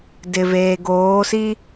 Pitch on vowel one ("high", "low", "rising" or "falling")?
low